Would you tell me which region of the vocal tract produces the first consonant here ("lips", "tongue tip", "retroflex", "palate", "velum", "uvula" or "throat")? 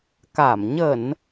velum